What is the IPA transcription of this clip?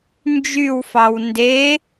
nd͡ʒywfɑw nde

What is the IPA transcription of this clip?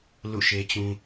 lṵ˦˨ʃe˦t͡ɕũ˦

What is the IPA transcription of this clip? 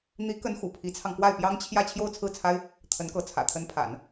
n̪i˧˥ kə˧˥n xṵ˨˩pʰi˧˥t͡sʰɑ˧ŋ kwa˥˩ɪ̯pjɑ˥ŋt͡ɕʰjä˥˧ t͡ɕʰjo˥˧ʊ̯t͡sʰɹ̩˥˩t͡sʰa˥ɪ̯ | t̪ʰə˧˥nkɤ˧˥ t͡sʰä̰˨˩t̪ʰə˧˥npʰa̰˨˩˦n

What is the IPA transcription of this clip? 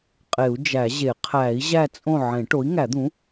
qʼe˨˩˦u̯d͡ʒæ˨˩˦ʑe˨˩˦ qʰæ˨˩˦i̯ ʑæ˥˨t͡sʼõ˥˨ ʕẽ˨˩˦ʈo˩˥i̯ŋæ˨˩˦d̪ũ˩˥

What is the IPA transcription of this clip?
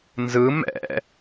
nzɯ mɛ̰

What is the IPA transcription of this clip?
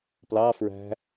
plɑ fɹæ̤

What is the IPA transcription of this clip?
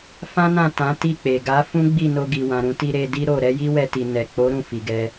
fã˦ nã˦˨ tã˨˦ ti˦˨k͡pe˨ ɡa˨˦ fũ˦ɡ͡bi˦˨no˧ ɡi˨wã˨ɾũ˧ti˧ ɾe˧di˦ ɾo˦˨ ɾɛ˨˦ji˦wɛ˧ti˨ nɛ˨k͡po˨˦ ɾũ˦˨fi˨ɡɛ˧

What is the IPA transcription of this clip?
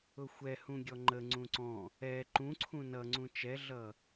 ʊxʷɛ hũɡʲɔŋ͡ǃə ŋ͡ǀũǀɔ̃ | ɛ ǃũ ǀʰũnʌŋ͡ǀũ t͡ʃɛɮʌ

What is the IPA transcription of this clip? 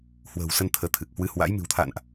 hwə̤ː˨˩wsə˧n t̪ʰəː˨˦t̪ʰɨ˨˩k̚ hwɨ˨˦hwa̰˧˥j mɨ̤˨˩wt̪ʰa̰ː˧˨nʔ

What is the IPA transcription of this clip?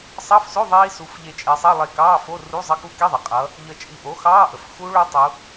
sˤɑ˧˥˧fso˧˥˧ ðˤiː˦˥su˨˥f ʎe˧˩t͡ʃʼe˩˧sˤɑ˧˥˧lˠe˧˩ kɑː˧˥˧fo˧˥˧ru˧˥˧ zˤʌ˧˥˧ku˦˥ki˧˥˧ðˤe˩ qʼʌ˩˧ | ʎə˧˩t͡ʃʼi˧˩ʔo˨˥ xɑː˧˥˧ʔə˩fxu˦˥ɭo˦˥ tˤu˩˧

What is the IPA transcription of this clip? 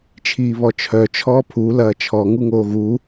t͡ʃʰiːβɔt͡ʃʰœ t͡ʃʰɔːpʰu lɐːt͡ʃʰɔ ŋuŋoːɣu

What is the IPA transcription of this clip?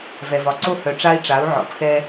vɛ˨vɒ˨ ǀo˦hœ˨ʈ͡ʂa˦i̯ʈ͡ʂa˨˦u̯ ʕɔ̰˨pxɛ˦

